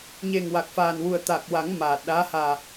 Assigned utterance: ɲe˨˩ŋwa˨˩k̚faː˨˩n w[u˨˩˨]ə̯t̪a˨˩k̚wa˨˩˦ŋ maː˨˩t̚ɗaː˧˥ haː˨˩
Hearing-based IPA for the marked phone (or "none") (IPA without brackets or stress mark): u˨˩